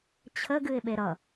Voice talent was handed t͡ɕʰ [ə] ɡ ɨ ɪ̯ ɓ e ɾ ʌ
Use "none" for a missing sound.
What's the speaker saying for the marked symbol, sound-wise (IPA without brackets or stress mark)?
ə